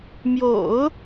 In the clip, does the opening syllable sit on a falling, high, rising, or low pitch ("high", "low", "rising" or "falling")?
low